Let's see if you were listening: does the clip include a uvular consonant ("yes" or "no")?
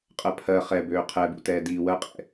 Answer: yes